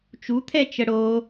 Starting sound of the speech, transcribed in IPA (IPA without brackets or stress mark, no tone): t͡ʃ